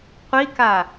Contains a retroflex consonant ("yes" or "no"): no